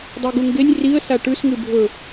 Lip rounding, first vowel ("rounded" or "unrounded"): rounded